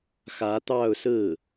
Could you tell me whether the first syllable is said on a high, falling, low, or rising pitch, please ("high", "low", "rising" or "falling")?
rising